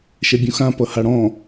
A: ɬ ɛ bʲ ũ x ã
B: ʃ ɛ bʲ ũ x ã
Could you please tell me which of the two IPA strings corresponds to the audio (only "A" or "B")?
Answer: B